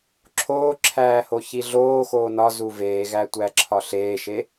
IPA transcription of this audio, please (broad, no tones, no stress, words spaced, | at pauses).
ǁʰoːǁʰæː hoçiɮoːxoː nɒzu veːɣæ tʷæǁʰɒɬeːʃe